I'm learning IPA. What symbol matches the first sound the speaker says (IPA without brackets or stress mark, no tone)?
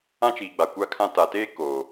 ã